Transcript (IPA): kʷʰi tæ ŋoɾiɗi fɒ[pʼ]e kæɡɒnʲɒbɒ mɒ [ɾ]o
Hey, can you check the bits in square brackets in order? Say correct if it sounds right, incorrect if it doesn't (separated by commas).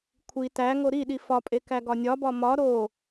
correct, correct